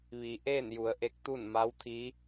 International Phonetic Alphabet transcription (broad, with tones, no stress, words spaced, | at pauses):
ʋi˩˧ʔeː˥˨nju˩˧ə̯ ʔe˧˥k̚t̪u˥˨n ma˧˥wt̪ʰiː˧˥